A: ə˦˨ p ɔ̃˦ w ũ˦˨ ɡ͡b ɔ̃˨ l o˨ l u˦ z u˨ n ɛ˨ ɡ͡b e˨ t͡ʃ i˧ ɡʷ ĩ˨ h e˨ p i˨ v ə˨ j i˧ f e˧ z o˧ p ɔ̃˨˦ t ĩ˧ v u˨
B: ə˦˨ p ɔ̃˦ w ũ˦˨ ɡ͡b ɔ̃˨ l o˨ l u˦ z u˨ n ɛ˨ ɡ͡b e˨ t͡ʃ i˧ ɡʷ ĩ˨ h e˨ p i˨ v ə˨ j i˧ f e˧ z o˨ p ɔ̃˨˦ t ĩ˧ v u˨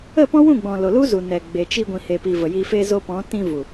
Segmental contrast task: A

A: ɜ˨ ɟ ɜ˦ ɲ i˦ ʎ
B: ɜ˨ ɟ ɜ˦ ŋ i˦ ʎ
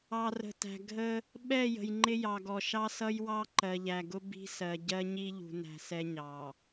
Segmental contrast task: A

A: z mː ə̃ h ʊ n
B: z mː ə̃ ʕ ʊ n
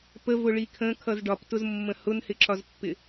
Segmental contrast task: A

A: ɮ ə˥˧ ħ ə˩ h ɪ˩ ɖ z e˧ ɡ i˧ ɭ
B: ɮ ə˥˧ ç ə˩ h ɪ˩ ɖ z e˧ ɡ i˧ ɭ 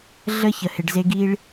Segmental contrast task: B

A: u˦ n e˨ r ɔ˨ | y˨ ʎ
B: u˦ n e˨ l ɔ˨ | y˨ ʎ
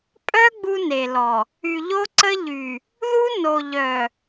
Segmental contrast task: B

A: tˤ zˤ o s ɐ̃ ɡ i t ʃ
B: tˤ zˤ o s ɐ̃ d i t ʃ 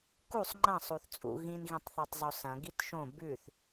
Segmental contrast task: A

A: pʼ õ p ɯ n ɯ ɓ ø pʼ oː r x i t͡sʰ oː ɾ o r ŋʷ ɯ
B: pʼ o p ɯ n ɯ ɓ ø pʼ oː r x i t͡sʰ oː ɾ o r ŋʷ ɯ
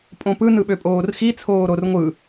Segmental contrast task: A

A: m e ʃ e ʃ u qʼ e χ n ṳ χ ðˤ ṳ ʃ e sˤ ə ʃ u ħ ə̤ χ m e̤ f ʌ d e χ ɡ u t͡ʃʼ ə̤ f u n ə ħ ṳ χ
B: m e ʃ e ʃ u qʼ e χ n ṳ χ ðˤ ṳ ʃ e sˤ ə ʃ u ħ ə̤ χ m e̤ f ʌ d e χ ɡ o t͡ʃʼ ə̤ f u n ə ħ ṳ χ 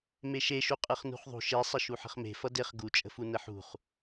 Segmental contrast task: A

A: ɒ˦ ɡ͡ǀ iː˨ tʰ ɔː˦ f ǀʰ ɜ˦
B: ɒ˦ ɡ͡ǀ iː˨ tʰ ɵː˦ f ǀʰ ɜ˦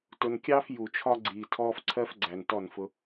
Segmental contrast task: A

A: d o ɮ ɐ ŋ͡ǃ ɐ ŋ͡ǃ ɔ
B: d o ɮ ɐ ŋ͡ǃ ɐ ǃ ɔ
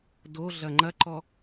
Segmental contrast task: B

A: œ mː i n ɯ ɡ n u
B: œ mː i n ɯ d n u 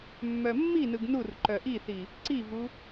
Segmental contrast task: A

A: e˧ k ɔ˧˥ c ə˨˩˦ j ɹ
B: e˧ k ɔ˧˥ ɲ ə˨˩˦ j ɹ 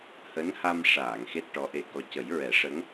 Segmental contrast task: A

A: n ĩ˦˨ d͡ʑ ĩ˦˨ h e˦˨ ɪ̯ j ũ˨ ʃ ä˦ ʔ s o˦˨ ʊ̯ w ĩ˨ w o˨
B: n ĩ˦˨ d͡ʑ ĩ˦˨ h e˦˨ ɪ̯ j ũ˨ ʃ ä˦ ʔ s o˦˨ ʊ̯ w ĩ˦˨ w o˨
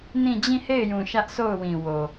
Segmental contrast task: A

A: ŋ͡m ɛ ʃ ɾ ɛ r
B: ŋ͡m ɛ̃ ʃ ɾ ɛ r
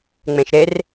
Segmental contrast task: B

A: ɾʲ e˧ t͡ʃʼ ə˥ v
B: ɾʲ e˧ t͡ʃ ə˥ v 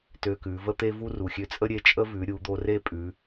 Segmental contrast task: A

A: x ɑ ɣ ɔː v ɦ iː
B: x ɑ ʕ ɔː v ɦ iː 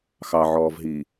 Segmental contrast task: B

